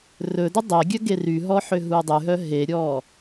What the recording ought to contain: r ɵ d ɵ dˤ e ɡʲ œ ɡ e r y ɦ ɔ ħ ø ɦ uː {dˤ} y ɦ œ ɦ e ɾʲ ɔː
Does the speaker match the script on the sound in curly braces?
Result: yes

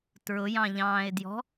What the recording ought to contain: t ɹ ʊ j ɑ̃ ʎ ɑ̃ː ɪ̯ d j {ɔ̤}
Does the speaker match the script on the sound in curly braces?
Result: yes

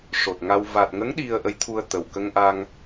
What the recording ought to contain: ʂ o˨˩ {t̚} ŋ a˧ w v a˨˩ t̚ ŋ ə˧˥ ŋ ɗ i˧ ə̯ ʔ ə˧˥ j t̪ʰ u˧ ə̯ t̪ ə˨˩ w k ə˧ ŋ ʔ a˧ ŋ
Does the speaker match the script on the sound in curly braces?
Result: yes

